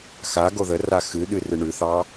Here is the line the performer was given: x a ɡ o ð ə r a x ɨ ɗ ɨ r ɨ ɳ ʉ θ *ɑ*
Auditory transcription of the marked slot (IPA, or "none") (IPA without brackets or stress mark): ɑ